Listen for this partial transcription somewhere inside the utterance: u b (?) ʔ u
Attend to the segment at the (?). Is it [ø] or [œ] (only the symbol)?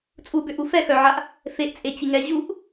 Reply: ø